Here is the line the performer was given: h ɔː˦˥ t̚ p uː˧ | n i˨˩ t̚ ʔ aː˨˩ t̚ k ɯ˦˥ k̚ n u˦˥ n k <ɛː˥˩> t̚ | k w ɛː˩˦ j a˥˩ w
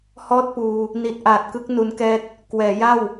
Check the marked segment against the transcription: correct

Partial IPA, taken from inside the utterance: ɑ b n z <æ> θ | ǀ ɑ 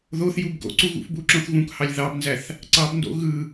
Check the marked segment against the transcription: correct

